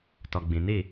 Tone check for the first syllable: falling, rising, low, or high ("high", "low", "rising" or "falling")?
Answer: low